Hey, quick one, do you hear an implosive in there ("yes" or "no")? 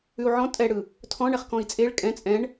no